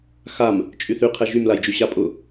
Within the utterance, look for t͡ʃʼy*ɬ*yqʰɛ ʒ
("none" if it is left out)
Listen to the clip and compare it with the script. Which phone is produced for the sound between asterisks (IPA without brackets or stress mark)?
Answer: θ